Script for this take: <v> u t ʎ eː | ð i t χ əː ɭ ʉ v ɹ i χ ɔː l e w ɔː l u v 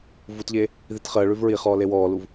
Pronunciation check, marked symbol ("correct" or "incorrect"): correct